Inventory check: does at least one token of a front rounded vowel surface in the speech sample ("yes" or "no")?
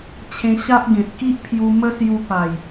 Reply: no